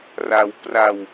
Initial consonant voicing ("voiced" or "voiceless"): voiced